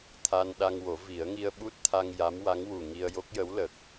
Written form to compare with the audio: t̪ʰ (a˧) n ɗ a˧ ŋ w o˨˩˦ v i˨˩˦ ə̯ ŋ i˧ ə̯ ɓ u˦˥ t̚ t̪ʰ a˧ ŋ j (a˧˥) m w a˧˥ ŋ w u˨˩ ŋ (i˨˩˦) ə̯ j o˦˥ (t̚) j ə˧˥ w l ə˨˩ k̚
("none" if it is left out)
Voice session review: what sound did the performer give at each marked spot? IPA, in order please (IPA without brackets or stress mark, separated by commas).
a˧, a˧˥, i˧, k̚